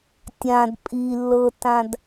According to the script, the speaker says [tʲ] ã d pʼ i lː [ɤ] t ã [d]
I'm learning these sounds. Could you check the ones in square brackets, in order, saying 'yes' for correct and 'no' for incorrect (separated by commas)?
yes, yes, yes